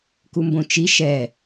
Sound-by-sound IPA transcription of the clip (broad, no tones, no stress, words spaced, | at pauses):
kumbõt͡ʃi ʃɛ